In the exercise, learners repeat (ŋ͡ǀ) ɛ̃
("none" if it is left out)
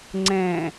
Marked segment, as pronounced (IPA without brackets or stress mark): ŋ͡ǀ